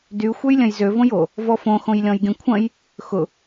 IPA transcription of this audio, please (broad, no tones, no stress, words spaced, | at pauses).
dy xʷɛjlʲɐ̃jzø võjo | vɔfõ xõjlʲɔ̃jɡʲɐ̃kʷʰɐ̃j | xʊ